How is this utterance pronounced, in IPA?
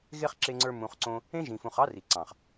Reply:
ɣ e˦ χ ǁ e˧ ŋ͡ǀ ə˞˧ m ũ˨ χ ǀ õ˧ | ẽ˦ ʒ ĩ˨ f ũ˨ χ ɑ˦ r i˨ ǀ ɑ̃˨ χ

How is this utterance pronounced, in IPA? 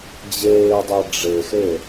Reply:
d͡ʑ eː dˤ a ɖ͡ʐ e x e

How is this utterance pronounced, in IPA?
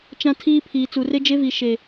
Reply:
t͡ʃ ã˦ tʰ iː˦ pʰ iː˨ t͡s u˨ r e˦ d͡ʒ e˦ v i˨ ʃ e˨

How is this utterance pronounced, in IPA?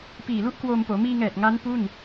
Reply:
p iː˨˩ l u˥˩ ʔ k w oː˧ m p oː˩˦ m iː˧ ŋ ɛː˨˩ t̚ ŋ a˦˥ n p u˥˩ n

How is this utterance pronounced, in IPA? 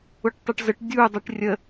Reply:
ʊ ʈ tˤ ɯ ʈ z ə ʈ dʲ u dˤ i ʈ rʲ ə

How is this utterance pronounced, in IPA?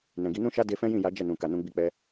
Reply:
n ɛ̃˨ ɡ i˨˦ n ũ˦ ʃ a˦ d e˧ f ɛ̃˦ j ĩ˦˨ j a˨˦ d͡ʒ ɛ˦˨ n ũ˨ k a˨ n ũ˧ ɡ͡b i˧ k͡p ɛ˧

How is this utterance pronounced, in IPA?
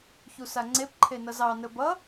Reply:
ç u s a ŋ͡ǀ e p ǃʰ e n ʌ z ɑ n ə b ʌ

